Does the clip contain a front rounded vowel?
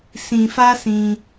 no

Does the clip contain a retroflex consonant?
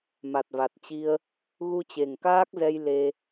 no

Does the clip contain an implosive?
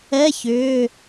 no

